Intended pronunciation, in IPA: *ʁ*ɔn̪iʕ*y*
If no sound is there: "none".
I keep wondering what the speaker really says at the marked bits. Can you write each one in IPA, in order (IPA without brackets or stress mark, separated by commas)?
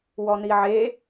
w, e